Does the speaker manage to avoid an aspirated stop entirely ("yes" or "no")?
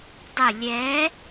yes